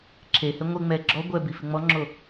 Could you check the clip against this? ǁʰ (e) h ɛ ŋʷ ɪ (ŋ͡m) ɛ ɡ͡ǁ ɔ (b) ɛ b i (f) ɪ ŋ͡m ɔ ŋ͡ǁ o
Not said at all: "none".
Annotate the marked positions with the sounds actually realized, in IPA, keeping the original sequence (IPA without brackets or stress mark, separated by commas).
e, ŋ͡m, ɡʷ, f